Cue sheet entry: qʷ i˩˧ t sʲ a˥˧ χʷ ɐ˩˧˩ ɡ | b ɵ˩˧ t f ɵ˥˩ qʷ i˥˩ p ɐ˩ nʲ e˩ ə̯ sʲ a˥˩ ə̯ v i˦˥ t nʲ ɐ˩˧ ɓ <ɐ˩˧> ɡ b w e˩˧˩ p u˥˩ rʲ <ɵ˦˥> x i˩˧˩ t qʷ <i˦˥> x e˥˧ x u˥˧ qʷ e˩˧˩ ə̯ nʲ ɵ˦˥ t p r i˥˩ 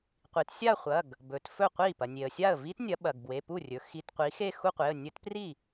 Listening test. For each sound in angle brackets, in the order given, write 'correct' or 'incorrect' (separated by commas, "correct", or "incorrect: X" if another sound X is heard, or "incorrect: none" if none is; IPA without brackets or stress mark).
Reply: incorrect: ɐ˩, incorrect: ɵ˩˧, incorrect: i˩˧